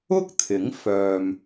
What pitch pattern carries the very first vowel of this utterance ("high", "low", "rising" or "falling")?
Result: high